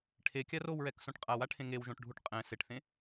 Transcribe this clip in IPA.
ʈʰ e kʲ a r o w ɹ ɛ k s õ ʈ qʼ a w a ʈʰ ẽ ŋ e w ʒ õ ʈ ɖʱ u ʈ qʼ ɛ̃ s e ʈ θ ẽ

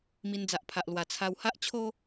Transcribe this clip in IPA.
m i˧ n d͡z a˨ ʔ pʰ a˨ ʔ l w a˨˩ t͡sʰ a˧ w h a˦ ʔ t͡ɕʰ o˦

